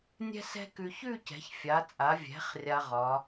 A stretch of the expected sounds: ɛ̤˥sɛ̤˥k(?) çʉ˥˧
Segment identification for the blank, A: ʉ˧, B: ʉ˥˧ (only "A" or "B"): A